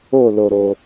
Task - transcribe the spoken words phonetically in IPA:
o˥˩ l o˩ ɾ o˩

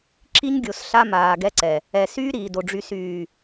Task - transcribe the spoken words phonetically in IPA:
ǁ i˦ ɲ ɡʲ o˨ s ɬ a˦ m aː˨ ɡ ɛ˦ ǀ ɛ˨ | ɛ˨ s yː˦ ɾ iː˨ d o˨ ɖ͡ʐ y˨ s yː˨

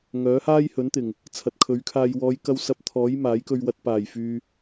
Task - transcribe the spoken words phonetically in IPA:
ŋ œː˨˥ h aː˥ j h ɵ˨˥ n t̪ ɪ˨˩ ŋ | t͡sʰ ɐ˨ t̚ kʰ ɵ˨˥ ɥ kʰ aː˧ j w ɔː˨˧ j k ɐ˧ w s ɐ˧ p̚ t̪ʰ ɔː˨˥ j m aː˨˥ j k ɵ˧ ɥ w ɐ˧ t̚ p aː˨˩ j f yː˨

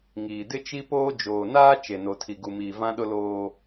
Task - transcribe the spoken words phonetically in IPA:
ŋ iː˨ d ɪ˦ t͡ʃ i˦ p oː˦ d͡ʒ oː˨ n aː˦ t͡ʃ e˨ n o˨ tʰ i˨ ɡ u˨ m iː˨ v ã˦ ɗ ʊ˦ l oː˦

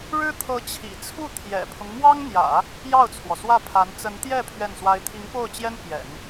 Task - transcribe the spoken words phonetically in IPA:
ɻ ɻ̩˥ t̪ʰ ɤ˧˥ t͡ɕʰ ḭ˨˩ t͡sʰ u˥˩ t̪ʰ j ɛ̰˨˩ pʰ ʊ˦ ŋ m w ɑ˥ ŋ n̪ j ä̰˨˩˦ | j ɑ˥˩ ʊ̯ t͡sʰ w ɔ˩ s w ä˥˩ pʰ a˧˥ n t͡s ə˧˥ n t̪ j ɛ˥˧ pʰ ɥ ɛ˥˩ n s w a˥ ɪ̯ t̪ʰ i˧˥ ŋ p o˥˩ ʊ̯ t͡ɕ j ɛ˥ n p j ɛ̰˨˩˦ n

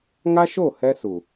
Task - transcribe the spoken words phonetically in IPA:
ŋ a˦ ʃ o˦˨ h ɛ˦ s u˨

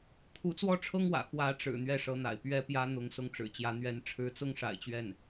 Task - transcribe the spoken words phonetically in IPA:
kʰ u˧˥ t͡s w ɔ˥˩ ʈ͡ʂʰ ɤ˥ ŋ w ä̰˨˩ x w ä˧˥ ʈ͡ʂ ɻ̩˨˩ n̪ ɥ ɛ˥˩ ʂ ɤ˧˥ n̪ a̰˨˩ ɪ̯ p ɥ ɛ˥ p j ä˥ n̪ ʊ˧˥ ŋ s ʊ˥˩ ŋ ʈ͡ʂ ɻ̩˨˩ t͡ɕ j ä˧˥ n̪ ɥ ɛ˧˥ n ʈ͡ʂʰ ɻ̩˧˥ t͡s ʊ˥ ŋ ʂ a̰˨˩ ɪ̯ t͡ɕ ɥ ɛ˥˩ n

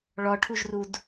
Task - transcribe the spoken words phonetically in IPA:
ɭ ɔ ʈʰ u ʒ r u d

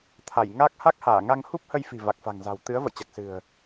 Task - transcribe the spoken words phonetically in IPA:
t̪ʰ a˧˩ j ŋ aː˦˥ k̚ h a˦˥ k̚ h aː˧˩ ŋ a˧ ŋ h u˦˥ p̚ h ə˧ j f i̤˨˩ v a˨˩ k̚ f a̤˨˩ ŋ z a̤˨˩ w t̪ ɨ˨˦ ə̯ v ə̰˧˨ j t͡ɕ a˨˩ k̚ s ɨ̤˨˩ ə̯

